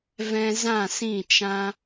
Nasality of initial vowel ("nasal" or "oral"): nasal